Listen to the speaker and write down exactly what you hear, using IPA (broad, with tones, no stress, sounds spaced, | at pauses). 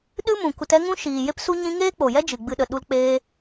ɗ ɨ˦ m ũ˨ k u˧ t ɛ˦ ŋ ũ˦ ʃ iː˨ j e˦ p s u˦ ɲ ĩ˦ ŋ eː˦ k͡p o˨ j ɛ˦ d͡ʒ ɨ˨ ɡ͡b ɨ˧ ɗ ə˨ ɗ u˧ l k͡p eː˦